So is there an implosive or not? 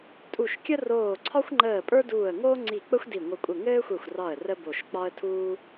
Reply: no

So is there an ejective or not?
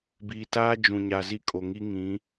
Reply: yes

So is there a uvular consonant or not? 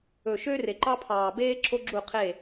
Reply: yes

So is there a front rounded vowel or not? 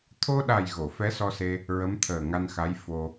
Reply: no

